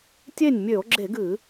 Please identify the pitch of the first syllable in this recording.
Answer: falling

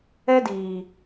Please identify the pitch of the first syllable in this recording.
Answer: high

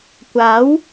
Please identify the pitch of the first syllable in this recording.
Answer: rising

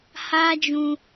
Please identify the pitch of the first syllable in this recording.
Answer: high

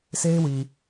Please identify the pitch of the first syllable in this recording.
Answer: high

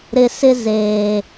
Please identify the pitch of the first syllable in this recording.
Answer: low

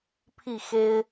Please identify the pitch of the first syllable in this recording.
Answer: falling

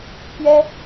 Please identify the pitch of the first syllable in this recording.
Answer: high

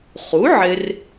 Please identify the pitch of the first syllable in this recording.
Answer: rising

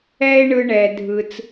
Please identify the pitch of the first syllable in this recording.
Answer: high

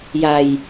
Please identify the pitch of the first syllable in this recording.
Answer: low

